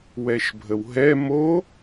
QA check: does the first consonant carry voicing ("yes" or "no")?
yes